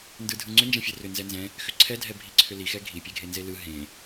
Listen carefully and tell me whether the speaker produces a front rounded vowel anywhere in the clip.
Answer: yes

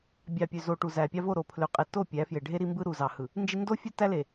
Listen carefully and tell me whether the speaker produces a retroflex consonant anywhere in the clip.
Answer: yes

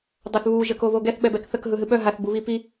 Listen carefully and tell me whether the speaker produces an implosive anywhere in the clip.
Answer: yes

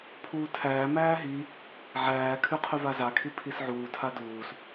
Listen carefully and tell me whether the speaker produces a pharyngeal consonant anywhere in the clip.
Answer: yes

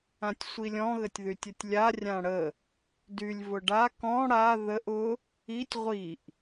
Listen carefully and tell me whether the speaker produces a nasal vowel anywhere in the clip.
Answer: yes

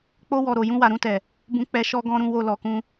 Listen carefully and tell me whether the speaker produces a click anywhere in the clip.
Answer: no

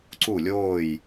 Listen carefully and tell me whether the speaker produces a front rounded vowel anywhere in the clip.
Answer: no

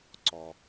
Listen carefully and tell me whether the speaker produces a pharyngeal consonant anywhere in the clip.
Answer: no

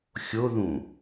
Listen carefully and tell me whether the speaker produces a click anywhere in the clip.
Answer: no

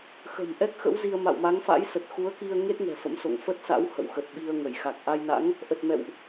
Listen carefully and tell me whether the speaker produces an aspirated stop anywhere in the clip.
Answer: no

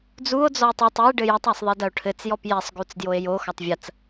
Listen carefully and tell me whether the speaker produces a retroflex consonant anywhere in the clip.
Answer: yes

